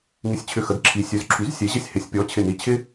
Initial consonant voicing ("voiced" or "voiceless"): voiced